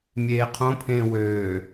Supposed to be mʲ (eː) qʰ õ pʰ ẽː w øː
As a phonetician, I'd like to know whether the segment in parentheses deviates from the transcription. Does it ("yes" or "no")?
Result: no